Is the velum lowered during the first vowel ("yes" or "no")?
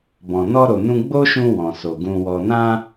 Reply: yes